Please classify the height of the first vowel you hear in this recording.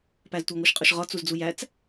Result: low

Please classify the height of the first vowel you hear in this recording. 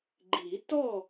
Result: high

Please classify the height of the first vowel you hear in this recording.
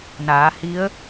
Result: low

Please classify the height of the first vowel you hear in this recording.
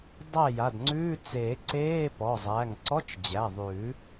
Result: low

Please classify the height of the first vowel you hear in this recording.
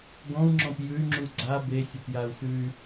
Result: mid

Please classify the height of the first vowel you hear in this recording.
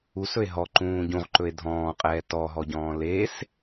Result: high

